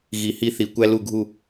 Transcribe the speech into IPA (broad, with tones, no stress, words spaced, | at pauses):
ɣi˧hi˥θi˧ kʷæ˥lu˥˧ɡʱu˥˧